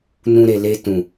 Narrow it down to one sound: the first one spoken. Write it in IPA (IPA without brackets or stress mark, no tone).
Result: n